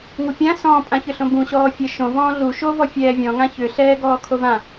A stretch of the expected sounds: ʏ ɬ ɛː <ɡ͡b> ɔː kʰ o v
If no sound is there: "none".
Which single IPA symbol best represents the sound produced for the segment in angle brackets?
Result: ɡ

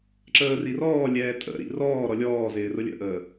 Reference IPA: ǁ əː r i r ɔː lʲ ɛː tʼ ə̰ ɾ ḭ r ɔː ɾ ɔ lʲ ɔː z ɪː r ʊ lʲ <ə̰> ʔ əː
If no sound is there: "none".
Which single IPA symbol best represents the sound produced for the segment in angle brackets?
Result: ə̰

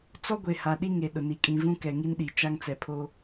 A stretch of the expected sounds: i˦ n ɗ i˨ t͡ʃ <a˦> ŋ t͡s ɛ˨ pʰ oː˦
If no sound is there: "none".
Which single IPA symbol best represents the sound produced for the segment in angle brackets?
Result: a˦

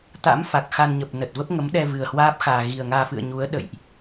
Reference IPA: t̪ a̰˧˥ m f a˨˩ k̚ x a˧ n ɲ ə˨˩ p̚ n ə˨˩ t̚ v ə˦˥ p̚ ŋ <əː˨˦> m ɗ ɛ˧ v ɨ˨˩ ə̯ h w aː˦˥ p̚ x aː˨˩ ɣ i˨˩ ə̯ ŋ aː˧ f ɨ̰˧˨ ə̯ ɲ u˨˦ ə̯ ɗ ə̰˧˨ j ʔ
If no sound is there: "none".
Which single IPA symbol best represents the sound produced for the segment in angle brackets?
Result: ə˨˦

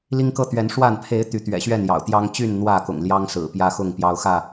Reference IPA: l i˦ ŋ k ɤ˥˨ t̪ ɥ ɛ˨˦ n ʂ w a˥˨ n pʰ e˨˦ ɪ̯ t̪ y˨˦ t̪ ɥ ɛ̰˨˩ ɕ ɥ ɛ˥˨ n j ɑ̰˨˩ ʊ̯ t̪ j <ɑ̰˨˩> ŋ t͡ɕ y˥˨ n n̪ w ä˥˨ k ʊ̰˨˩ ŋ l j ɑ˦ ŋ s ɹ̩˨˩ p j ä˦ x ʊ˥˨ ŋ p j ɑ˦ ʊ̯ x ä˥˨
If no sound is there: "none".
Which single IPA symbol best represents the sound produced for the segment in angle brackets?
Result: ɑ˦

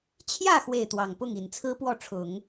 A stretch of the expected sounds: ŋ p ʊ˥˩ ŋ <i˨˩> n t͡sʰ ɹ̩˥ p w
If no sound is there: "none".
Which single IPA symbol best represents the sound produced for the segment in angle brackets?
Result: i˨˩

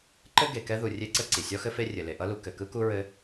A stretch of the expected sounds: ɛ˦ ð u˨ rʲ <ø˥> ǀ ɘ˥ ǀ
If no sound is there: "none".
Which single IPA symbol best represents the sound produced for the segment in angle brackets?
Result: e˥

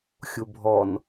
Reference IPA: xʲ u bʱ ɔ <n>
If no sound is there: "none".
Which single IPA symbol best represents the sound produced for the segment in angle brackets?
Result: n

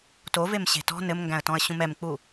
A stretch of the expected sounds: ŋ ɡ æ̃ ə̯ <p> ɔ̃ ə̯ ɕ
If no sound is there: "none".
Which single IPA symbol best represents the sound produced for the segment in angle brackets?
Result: t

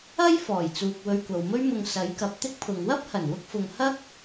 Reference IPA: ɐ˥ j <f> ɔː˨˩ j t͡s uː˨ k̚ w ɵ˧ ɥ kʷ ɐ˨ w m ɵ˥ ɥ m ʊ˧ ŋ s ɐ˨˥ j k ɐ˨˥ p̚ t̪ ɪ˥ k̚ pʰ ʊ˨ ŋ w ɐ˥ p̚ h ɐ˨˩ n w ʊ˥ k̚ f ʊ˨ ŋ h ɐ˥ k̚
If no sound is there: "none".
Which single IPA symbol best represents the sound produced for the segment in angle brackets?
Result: f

